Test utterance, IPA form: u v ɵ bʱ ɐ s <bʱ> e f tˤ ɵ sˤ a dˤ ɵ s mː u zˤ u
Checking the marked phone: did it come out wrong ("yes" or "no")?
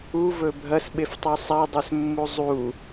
yes